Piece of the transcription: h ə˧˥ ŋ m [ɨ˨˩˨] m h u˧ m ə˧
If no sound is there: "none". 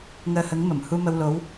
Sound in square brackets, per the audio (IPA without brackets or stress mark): ə˨˩˨